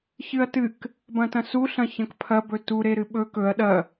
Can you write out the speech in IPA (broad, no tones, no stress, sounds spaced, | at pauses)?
ç ɨ ɐ̯ t ɨ k | b ɐ̃ t ɐ̃ s u ɬ ɐ̃ ç ɐ̃ k pʰ ɐ b ɵ t u ɾ e ɾ ɨ ɓ ɵ k ɵ ɐ̯ ɗ ɐ